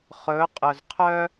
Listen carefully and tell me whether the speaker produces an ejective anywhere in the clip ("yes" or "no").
yes